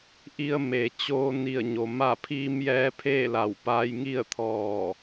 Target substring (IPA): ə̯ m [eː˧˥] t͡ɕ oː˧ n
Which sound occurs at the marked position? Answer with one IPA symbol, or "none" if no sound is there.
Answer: eː˩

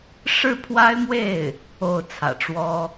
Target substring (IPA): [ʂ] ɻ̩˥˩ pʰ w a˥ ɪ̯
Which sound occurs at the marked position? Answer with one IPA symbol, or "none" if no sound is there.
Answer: ʂ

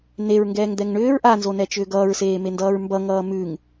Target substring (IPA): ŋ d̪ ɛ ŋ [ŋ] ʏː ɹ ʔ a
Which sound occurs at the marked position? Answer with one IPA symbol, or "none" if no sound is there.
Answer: ɳ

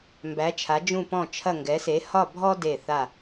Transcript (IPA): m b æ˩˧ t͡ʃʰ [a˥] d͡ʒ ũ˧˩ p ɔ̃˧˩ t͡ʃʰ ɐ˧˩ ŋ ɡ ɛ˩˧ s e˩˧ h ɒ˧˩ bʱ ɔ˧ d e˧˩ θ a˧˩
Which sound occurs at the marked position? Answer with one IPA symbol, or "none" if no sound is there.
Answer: a˩˧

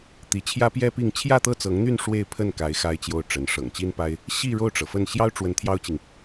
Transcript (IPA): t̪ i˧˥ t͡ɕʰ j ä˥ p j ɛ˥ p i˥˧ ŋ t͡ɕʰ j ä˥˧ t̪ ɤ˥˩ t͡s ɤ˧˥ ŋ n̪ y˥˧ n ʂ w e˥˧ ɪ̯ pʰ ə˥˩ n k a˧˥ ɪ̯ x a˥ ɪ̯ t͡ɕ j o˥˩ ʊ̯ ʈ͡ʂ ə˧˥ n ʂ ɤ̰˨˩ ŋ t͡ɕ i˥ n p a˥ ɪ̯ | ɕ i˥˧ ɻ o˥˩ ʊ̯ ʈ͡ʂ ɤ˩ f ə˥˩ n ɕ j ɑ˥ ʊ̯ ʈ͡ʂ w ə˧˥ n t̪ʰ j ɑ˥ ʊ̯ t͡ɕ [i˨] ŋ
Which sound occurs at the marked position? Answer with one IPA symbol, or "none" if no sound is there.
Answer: i˨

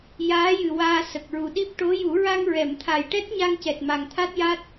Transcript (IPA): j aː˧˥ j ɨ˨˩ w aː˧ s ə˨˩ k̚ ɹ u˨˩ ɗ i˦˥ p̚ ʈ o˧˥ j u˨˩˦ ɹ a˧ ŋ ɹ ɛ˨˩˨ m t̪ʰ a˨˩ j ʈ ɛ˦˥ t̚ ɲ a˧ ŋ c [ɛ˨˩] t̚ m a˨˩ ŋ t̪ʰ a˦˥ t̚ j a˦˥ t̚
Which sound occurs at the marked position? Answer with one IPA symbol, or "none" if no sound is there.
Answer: ɛ˨˩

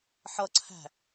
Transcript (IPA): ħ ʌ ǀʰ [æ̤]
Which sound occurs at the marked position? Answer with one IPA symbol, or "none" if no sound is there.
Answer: æ̤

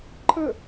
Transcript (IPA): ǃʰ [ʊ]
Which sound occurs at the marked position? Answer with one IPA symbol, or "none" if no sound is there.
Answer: ə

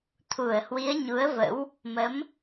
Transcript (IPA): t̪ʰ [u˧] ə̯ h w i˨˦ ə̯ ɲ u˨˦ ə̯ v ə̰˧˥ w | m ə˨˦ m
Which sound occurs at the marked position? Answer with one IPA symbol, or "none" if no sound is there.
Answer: u˧˩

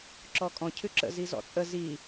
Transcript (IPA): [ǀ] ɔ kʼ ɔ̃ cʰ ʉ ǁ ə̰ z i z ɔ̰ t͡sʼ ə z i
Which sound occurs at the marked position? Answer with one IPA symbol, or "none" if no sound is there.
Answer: ǁ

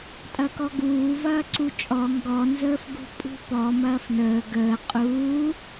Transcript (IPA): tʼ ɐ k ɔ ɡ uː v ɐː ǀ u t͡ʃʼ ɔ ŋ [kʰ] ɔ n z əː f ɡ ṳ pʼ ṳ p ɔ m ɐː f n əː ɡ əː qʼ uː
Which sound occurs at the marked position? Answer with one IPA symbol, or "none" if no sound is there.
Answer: ɡ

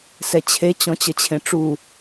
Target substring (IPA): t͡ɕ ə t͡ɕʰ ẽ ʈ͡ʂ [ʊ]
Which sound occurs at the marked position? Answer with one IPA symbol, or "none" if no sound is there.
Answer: u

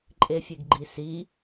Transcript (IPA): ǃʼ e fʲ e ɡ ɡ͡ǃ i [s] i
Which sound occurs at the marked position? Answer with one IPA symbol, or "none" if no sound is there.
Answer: s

